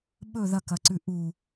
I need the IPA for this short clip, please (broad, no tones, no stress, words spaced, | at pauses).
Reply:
ɓɵ ðɐkɐǀʉ ʔu